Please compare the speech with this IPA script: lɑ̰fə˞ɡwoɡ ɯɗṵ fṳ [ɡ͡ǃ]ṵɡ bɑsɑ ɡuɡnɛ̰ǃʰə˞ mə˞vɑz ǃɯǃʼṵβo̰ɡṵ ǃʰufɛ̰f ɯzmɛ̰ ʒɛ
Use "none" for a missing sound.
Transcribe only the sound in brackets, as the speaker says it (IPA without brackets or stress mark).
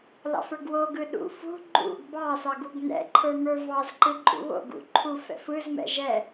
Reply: ɡ͡ǃ